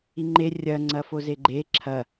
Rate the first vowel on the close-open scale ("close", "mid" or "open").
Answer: close